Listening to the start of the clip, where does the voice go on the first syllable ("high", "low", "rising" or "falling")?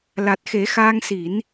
low